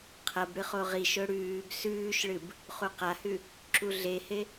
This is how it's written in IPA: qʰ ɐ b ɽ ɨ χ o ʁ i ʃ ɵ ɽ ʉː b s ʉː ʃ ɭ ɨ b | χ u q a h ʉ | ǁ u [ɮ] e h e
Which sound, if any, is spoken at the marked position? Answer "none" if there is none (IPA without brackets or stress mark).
ɮ